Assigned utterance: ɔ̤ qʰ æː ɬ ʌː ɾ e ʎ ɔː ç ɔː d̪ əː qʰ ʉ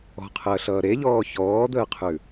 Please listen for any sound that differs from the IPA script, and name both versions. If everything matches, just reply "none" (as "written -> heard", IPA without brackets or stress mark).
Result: æː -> əː